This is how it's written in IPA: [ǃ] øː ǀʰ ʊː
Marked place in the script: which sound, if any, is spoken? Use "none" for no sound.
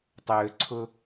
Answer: tˤ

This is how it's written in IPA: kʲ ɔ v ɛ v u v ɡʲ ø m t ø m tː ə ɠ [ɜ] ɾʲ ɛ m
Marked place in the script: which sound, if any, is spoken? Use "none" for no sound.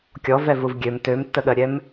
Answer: ɜ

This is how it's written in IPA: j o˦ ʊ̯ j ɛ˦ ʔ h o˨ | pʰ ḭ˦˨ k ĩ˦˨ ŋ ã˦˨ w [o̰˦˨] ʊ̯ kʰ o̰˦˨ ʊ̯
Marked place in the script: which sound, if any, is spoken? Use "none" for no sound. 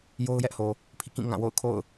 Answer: o̰˦˨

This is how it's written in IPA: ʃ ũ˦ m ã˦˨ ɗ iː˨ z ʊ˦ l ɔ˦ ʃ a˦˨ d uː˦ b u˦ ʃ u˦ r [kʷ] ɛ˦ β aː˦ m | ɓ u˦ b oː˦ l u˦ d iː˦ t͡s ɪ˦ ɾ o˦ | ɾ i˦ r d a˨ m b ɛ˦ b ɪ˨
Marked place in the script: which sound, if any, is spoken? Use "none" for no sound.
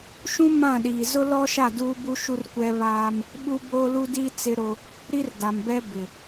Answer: kʷ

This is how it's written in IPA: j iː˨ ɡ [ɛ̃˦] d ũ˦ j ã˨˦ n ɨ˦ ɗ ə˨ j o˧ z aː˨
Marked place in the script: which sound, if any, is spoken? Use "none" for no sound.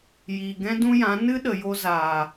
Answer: ɛ̃˦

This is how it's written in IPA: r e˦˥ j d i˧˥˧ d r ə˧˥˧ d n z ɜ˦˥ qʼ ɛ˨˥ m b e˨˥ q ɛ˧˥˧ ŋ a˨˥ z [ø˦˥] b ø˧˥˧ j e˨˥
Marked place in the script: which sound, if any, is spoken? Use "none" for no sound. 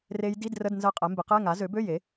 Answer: ø˨˥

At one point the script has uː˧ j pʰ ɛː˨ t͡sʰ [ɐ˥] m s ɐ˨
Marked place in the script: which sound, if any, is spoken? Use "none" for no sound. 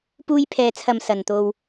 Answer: ɐ˨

